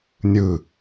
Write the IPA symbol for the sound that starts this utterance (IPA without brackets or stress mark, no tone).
nʲ